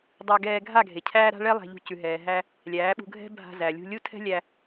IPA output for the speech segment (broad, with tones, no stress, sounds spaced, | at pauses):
dˤ a˧ ɡ ɛː˧ ɡʱ a˦˨ ɡʱ e˨ cʰ æː˦ ɾ a̤˦ ɭ ɛ˦ lˠ æ̤˧ ʎ ṳ˧ c ʉ˨ ɦ ɛː˨ ɦ æ˧ | lʲ æː˨˦ ɓ ṳ˧ ɡʱ ɛ̤˦ bʱ a̤˧ z æ˨ lʲ ṳ˧ lʲ u˦ tʰ ɛ̤˦ lʲ æ˧